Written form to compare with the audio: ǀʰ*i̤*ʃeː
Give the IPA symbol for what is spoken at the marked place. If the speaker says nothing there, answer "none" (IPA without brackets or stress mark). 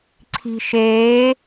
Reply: i̤